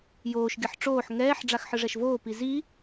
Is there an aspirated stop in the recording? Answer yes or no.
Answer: no